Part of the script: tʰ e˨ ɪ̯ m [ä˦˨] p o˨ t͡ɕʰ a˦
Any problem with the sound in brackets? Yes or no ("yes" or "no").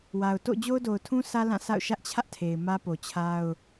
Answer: yes